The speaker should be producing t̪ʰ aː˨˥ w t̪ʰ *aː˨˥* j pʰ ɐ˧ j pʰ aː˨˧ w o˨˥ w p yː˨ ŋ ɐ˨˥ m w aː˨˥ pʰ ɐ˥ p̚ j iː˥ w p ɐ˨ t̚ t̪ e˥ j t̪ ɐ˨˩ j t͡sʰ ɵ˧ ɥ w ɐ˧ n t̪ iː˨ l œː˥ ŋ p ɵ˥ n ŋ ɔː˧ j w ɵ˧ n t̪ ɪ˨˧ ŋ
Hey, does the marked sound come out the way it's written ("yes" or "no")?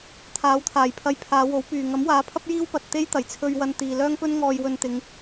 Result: no